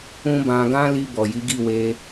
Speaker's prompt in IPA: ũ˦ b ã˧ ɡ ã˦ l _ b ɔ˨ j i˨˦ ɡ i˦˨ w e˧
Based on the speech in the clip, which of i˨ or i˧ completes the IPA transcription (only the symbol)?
i˧